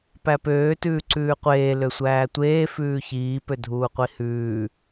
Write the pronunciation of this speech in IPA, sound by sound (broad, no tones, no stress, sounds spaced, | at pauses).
p æ p øː t ʉː ǀ ʉː qʷ eː l ø sʷ æː tʷ eː f ʉː ç iː p ø dʱ uː qʷ i h ʉː